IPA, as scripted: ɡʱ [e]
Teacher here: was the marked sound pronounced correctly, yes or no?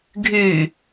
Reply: no